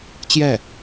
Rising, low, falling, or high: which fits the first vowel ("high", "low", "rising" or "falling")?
falling